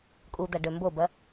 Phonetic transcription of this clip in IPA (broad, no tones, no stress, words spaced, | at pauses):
kʼud̪aɖø mbobɐ